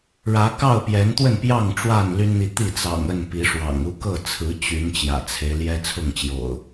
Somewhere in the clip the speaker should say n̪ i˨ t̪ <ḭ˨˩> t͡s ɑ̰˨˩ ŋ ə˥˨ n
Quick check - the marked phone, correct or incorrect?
incorrect: i˥˨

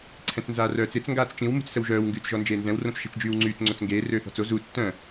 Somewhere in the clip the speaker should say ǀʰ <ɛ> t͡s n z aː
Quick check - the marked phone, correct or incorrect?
incorrect: ɛ̃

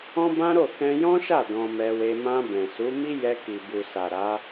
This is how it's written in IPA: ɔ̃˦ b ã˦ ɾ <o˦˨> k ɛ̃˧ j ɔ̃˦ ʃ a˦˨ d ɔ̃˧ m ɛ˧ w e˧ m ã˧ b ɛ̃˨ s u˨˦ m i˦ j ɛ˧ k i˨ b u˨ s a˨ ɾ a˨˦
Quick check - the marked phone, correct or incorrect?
correct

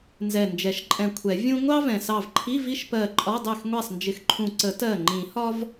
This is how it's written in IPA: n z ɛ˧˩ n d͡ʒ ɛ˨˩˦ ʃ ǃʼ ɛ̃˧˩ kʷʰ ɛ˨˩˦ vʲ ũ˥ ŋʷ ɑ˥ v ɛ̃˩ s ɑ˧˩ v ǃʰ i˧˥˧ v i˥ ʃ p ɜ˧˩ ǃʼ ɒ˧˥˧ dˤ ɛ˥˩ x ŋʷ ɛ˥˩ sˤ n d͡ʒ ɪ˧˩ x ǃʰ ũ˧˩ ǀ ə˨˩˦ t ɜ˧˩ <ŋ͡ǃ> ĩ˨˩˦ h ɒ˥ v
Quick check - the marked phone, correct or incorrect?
correct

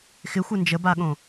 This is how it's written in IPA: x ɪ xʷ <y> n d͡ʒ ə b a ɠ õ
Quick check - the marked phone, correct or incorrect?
incorrect: ɪ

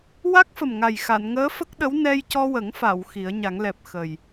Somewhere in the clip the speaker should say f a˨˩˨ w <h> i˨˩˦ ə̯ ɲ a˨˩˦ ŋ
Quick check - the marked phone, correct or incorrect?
incorrect: x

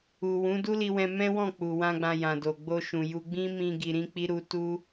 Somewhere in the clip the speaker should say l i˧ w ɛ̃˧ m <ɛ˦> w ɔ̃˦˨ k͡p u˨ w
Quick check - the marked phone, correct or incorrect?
incorrect: ɛ̃˦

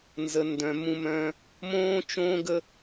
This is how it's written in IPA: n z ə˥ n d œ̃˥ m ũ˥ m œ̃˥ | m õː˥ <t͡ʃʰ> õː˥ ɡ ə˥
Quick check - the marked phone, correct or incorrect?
incorrect: t͡ʃ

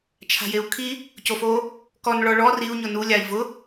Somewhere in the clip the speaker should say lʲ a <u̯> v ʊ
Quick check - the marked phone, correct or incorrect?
incorrect: i̯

